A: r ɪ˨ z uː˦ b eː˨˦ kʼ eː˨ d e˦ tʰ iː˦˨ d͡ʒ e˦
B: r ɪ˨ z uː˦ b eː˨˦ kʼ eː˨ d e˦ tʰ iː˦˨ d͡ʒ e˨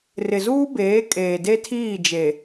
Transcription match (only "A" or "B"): B